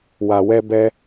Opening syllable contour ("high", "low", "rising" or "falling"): low